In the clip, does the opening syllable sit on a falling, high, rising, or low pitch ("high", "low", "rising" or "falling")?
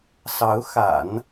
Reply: rising